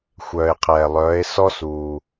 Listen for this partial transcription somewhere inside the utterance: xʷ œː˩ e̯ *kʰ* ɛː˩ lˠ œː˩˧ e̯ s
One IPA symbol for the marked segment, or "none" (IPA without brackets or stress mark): qʰ